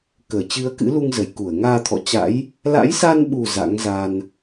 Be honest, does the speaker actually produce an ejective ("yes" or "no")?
no